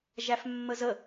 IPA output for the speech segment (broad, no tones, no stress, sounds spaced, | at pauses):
ʒ æ f mː ə z ə